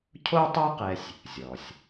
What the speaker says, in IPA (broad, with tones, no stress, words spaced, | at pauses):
cʰo˥tˤo˥qɛ˧sʲ | zʲɔ˩sʲ